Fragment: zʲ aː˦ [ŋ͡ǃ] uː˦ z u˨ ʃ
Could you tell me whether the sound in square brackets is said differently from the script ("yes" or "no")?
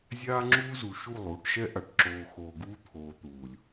yes